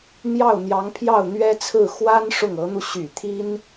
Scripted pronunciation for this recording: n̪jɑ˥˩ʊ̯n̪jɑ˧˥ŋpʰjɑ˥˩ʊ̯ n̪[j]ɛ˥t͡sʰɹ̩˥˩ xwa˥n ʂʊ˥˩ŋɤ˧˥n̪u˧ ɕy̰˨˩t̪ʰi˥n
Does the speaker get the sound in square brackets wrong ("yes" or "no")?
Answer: yes